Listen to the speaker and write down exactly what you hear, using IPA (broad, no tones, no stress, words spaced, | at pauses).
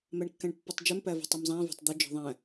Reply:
mæɳkːæ̃ɳpːotˤd͡ʒɵm pævɔ̤tˤɛmzˤæ̃ vɑ̤tˤd̪ɵ d͡ʒɔ̤ðˤæ̃